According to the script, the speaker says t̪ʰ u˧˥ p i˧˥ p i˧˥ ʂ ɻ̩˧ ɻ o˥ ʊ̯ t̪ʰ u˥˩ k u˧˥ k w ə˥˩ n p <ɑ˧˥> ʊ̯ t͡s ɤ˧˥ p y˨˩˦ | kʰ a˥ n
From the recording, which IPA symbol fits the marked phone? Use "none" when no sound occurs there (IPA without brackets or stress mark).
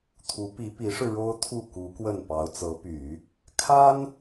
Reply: ɑ˧˥